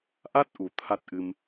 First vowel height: low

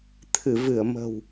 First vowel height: high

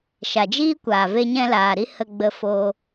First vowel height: low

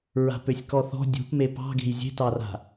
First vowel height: low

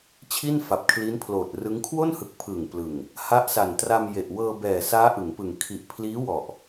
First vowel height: high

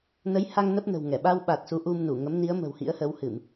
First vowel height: mid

